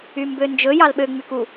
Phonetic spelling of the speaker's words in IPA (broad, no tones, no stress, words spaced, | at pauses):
ymbønd͡ʒɵ jɑlɓø ŋ͡myku